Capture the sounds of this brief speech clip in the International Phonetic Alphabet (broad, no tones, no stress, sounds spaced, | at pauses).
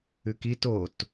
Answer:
ʉ k i t o t